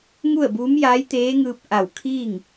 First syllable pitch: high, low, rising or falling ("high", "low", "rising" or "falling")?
falling